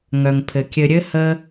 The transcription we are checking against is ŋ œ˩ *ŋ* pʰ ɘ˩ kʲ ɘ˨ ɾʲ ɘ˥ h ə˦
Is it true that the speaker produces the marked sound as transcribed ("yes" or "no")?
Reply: yes